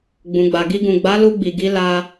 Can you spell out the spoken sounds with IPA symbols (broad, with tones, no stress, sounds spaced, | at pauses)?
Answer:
ɡ͡b ũ˨ ɡ͡b a˨ ɡ i˧ ɡ ũ˨ ɡ͡b a˨˦ l u˧ ɡ͡b i˨ ɡ i˨˦ l a˧